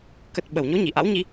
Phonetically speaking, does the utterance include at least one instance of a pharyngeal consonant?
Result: no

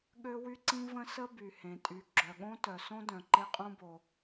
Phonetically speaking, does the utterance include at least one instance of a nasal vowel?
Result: yes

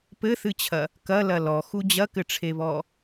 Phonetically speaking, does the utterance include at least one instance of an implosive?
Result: no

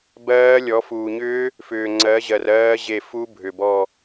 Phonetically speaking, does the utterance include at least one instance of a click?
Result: yes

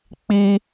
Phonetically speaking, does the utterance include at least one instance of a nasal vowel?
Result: no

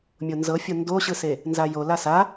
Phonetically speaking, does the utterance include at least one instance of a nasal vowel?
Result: no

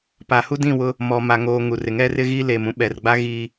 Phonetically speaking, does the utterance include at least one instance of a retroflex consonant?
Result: no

